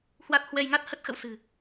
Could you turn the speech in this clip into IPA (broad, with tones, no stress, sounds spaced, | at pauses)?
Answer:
h w a˦˥ t̚ h w ɛ˧ j ŋ a˦˥ t̚ h ə˦˥ t̚ x ə̰˧˨ w s ɨ̤˨˩